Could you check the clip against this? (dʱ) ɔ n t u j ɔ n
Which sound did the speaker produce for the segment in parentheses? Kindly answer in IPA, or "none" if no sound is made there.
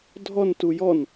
dʱ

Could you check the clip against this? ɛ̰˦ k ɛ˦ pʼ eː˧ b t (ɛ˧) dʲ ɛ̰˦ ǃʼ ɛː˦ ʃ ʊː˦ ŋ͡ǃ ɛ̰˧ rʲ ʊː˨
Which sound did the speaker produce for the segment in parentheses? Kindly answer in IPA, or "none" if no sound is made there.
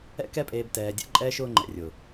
ɛː˧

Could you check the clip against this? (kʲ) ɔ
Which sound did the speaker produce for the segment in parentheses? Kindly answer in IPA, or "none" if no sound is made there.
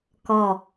k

